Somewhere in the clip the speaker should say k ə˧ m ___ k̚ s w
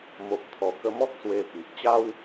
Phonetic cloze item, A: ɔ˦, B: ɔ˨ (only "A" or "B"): A